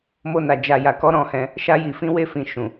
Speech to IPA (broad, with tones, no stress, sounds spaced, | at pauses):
m o˧ n a˨ d͡ʒ a˨ j a˨ k ɔ˨˦ ɾ ɔ̃˧ h ɛ̃˧ | ʃ a˧ j i˨ f ĩ˧ w e˦ f ĩ˧ ʃ ũ˨